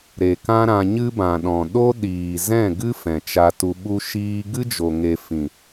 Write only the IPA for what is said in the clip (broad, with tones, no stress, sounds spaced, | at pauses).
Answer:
ɾ e˨ k ã˦ ɾ ã˧ ɲ ɨ˦ b ã˨ ɗ ɔ̃˨ ɗ o˦ ɗ iː˨ z ɛ̃˦˨ ɡ ɨ˦ f ɛ̃˨ t͡ʃ a˧ t u˧ ɓ u˧ ʃ iː˧ ɡ ɨ˦ d͡ʒ o˨ ŋ e˨ f ĩ˨